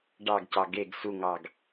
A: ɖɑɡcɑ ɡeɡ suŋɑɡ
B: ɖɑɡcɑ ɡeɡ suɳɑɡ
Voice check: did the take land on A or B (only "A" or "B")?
A